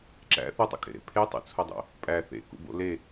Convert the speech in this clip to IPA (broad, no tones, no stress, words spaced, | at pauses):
ǁæ̰ θutˤṵkʼḛɾḛ pʰetˤṵt͡sʰodˤo̰ | pʼæ θḛkṵbo̰ le